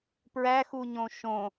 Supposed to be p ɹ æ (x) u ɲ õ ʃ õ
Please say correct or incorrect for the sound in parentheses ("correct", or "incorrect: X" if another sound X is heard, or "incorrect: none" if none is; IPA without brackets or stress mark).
correct